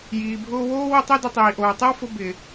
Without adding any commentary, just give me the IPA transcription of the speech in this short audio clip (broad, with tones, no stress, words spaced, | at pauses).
jiː˨bʱʊː˧woː˦ wɪ˦tˤi˦dɪ˧ tˤiː˨ʔoː˨tˤɪ˦wfʊ˧ bɪ˨